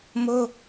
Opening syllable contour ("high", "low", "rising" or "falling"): high